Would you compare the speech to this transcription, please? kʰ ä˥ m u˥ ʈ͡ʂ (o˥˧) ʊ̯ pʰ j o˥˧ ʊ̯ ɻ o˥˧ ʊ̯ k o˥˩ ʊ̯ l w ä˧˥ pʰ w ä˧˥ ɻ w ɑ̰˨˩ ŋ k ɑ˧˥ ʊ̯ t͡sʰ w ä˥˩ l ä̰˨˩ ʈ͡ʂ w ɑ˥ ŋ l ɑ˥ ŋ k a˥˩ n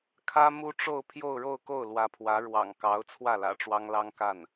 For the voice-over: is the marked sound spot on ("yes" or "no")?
yes